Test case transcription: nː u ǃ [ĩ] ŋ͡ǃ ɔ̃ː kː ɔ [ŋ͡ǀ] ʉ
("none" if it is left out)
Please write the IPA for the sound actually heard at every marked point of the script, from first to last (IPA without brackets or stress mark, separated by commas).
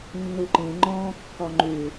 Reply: ĩ, ŋ͡ǃ